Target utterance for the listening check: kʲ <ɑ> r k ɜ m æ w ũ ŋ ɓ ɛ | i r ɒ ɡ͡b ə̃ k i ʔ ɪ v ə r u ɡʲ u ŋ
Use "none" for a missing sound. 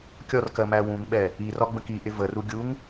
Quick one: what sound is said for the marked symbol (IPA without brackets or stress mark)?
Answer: ɔ